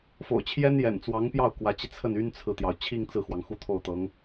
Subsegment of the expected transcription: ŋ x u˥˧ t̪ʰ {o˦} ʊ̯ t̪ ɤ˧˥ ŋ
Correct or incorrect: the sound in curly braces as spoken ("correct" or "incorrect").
incorrect